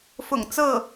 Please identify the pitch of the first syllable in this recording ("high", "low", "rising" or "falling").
low